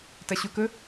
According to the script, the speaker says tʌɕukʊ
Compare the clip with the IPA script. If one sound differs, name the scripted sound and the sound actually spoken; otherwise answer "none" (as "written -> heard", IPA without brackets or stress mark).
none